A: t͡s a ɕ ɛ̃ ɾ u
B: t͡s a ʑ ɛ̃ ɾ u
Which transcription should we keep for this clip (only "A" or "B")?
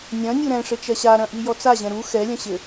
B